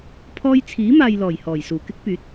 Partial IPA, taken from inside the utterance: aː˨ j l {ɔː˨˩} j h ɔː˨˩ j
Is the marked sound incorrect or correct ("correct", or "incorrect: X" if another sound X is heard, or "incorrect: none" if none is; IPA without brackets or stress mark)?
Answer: correct